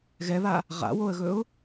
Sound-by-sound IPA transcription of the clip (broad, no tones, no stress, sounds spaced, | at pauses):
ɣ ɛ β a | ʁ a̰ w o ə̯ ɣ ɵ ʊ̯